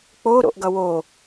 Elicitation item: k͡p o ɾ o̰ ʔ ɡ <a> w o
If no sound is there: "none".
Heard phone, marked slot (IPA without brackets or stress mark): ʌ